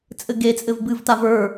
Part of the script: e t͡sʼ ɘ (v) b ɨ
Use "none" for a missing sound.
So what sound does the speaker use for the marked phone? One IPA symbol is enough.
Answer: v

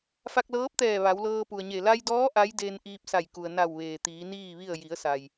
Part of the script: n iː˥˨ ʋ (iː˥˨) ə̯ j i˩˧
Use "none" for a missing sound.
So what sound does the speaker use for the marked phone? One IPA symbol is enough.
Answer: i˥˨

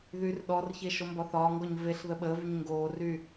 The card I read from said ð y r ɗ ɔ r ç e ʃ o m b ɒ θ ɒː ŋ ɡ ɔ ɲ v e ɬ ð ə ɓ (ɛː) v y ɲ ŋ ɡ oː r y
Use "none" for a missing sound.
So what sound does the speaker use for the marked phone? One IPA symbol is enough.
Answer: əː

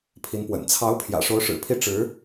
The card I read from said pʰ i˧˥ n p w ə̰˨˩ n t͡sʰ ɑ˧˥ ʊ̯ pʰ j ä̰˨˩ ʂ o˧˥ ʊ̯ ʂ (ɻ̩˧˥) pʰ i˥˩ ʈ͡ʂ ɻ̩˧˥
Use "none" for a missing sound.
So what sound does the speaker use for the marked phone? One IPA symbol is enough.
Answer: ɻ̩˨˩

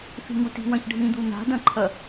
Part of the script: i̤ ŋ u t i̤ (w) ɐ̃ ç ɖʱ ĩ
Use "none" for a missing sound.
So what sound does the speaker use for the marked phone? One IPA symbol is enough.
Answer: w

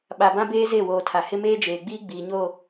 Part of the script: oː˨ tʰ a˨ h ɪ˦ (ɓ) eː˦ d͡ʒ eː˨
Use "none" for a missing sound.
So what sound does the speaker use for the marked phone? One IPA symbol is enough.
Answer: m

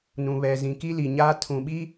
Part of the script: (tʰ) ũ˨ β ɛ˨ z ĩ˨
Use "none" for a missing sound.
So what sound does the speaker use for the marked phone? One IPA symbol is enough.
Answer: n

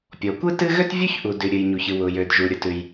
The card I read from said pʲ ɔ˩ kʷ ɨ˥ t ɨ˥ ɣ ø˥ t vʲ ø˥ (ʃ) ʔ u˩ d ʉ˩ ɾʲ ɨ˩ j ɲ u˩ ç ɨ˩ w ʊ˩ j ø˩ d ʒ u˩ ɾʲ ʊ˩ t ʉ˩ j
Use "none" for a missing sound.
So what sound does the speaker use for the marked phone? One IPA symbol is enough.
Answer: ç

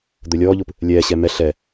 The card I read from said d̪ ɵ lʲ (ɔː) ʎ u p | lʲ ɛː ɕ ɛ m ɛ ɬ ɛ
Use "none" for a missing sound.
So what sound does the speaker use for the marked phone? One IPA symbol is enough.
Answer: ɔː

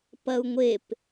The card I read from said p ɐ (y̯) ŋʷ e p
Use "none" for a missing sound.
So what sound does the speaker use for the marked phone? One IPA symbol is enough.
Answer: u̯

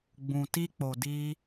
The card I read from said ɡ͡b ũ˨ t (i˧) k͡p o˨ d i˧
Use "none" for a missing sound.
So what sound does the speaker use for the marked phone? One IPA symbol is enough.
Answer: i˧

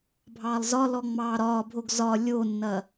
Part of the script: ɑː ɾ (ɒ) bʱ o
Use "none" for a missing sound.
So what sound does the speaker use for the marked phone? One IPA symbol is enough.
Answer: ɒː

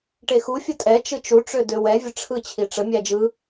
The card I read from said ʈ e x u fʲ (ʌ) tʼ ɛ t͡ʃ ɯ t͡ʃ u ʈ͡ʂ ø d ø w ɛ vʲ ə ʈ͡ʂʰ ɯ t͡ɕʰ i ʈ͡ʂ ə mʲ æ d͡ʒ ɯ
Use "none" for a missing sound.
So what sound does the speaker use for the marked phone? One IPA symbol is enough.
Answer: ə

